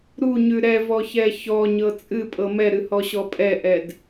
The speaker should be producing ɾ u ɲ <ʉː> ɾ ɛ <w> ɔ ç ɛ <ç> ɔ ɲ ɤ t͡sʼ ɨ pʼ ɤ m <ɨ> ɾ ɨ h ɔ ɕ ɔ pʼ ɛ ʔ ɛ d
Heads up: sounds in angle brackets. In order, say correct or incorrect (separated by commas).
incorrect, incorrect, correct, incorrect